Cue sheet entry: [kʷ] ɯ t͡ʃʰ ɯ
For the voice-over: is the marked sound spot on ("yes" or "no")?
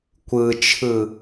yes